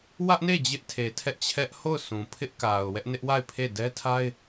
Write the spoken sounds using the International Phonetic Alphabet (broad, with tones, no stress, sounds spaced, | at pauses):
w ä˦ ʔ n e˦˨ d͡ʑ ɪ˦ ʔ tʰ e˨ tʰ ɛ˦ ʔ t͡ɕʰ ɛ˦ ʔ h o˦˨ ʊ̯ s ũ˨ pʰ ɪ˦ ʔ k a˨ ʊ̯ w ɛ˦ ʔ n ɪ˦ ʔ w a˦˨ ɪ̯ pʰ e˦˨ d ɛ˦ tʰ a˦ ɪ̯